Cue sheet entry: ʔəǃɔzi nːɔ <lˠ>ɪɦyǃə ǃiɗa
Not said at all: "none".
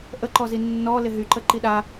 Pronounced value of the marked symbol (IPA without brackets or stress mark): l